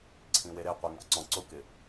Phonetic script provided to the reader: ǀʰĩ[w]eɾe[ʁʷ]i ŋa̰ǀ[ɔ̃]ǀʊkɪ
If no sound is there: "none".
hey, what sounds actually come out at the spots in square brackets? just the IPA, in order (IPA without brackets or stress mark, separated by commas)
w, qʷ, ɔ̃